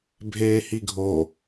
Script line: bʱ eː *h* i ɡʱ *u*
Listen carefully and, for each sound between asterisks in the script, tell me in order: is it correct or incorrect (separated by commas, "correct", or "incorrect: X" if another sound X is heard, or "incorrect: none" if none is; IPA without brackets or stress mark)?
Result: correct, incorrect: o